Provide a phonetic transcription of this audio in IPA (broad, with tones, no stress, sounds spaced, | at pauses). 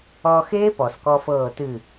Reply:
ɔ˧ x eː˦˥ p ɔ˩ s k ɔ˧ f ɤː˧˩ t ɨ˧˩